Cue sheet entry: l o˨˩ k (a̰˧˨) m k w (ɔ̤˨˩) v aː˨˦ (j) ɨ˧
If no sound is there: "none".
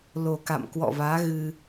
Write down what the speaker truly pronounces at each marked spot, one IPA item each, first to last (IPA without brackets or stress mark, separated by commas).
a̰˧˨, ɔ̰˧˨, ɣ